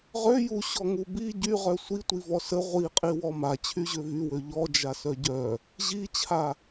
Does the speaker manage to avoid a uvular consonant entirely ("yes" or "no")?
no